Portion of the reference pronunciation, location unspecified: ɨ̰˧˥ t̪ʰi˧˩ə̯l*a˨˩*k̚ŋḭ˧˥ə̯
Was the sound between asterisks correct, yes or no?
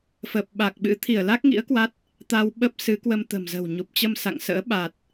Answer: no